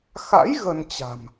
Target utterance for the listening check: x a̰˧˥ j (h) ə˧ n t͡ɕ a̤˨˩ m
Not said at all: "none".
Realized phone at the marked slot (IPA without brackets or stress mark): ɣ